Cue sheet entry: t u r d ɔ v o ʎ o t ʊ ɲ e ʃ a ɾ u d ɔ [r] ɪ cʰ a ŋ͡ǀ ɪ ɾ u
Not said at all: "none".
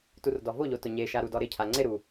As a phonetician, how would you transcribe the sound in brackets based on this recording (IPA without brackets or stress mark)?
ɾ